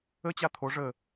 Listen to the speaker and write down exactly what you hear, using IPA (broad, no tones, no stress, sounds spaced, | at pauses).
ə t͡ɕ a t̪ʰ o ʐ ə